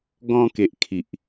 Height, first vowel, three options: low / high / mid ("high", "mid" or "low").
mid